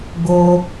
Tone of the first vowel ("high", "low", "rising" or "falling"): high